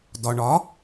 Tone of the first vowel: low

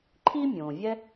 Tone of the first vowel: high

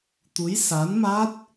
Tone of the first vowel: rising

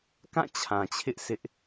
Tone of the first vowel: falling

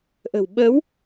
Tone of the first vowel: low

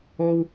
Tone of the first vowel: high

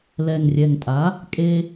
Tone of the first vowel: low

